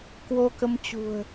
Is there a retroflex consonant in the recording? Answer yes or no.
no